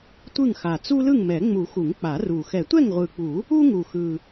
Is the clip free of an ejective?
yes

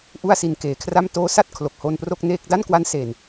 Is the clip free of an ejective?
yes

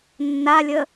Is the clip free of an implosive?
yes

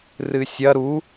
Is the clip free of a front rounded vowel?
yes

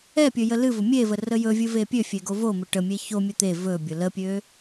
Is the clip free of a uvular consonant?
yes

